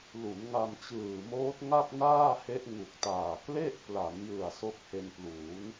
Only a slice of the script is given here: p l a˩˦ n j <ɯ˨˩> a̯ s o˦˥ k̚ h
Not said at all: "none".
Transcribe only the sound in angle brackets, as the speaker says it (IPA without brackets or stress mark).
ɯ˨˩